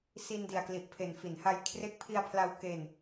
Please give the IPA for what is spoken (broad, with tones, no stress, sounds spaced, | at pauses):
s i˧ n d i˨˩ a̯ k l i˨˩ ʔ pʰ e˨˩ n f i˩˦ n h a˧ j kʰ r e˦˥ k̚ pʰ i˧ a̯ pʰ l a˧ w k e˧ n